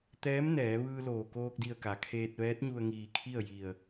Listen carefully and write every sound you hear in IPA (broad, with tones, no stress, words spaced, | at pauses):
t̪ɛː˧˥m nɛː˩˧ ʋɯː˧loː˩koː˧k̚di˧˩ə̯ ka˩kʰeː˧t̚ ʋɛː˧˥t̚ɲu˧ə̯ŋiː˧˩kʰi˥˨ə̯ ji˧˩ə̯